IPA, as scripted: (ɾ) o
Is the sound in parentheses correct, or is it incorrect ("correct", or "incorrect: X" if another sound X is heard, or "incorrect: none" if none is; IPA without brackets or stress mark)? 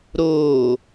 correct